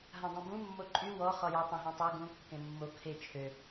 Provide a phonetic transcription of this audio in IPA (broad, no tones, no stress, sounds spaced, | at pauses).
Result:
ɦ ã dˤ ũ b ũ mː o ǃʼ y w ɔ χ ɔ j o tˤ ã ɦ ɛ̃ tˤ a ɡ ũ kː ẽ mː o kʰ e t͡ʃʰ ø